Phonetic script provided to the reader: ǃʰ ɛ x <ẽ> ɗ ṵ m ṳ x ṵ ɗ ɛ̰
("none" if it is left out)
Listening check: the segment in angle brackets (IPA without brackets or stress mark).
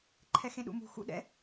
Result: ẽ